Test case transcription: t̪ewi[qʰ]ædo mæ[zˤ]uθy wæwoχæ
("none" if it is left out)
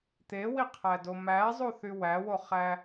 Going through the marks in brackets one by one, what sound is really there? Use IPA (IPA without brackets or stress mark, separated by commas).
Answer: qʰ, zˤ